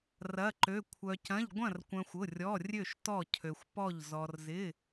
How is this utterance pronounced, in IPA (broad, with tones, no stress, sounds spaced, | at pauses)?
r ɐ˧˥˧ ǃ ø˧˥˧ kʷʰ œ˧ c ɐ̃˧˥˧ ʎ ɡʷ ɐ̃˥˨ r kʷ œ̃˧ xʷ ʊ˧˥˧ rʲ ɔ˧˥˧ rʲ ø˥˨ ʃ t ɔ˥˨ cʰ ø˧ xʷ p ɔ˥˨ ʎ z ɔ˧ r z ɪ˧˥˧